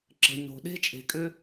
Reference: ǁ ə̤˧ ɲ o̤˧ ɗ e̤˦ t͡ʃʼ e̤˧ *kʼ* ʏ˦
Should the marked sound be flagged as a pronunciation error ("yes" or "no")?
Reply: no